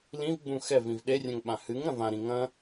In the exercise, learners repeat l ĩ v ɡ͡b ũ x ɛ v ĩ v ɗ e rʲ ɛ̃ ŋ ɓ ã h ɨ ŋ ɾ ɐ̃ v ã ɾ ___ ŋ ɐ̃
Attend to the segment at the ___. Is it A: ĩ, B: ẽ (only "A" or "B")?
A